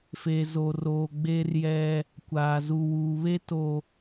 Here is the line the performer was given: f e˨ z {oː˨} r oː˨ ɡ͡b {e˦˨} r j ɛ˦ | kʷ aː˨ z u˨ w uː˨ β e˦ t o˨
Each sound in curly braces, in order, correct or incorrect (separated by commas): incorrect, incorrect